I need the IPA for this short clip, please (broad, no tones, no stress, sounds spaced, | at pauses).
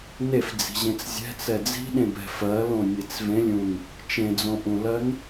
n e f d͡z i̤ ʑ ẽ t͡s zʲ ɛ̤ t͡s ɛ d͡z i̤ ɗ ẽ b ɛ̤ f ɜ l õ nʲ e t͡s v ẽ lʲ ũ n | t͡ʃ ẽ d͡z õ ʔ ũ l ɜ n